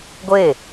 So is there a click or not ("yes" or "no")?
no